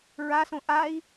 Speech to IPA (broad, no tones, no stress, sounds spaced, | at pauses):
ɹ a s õ ʔ a i̯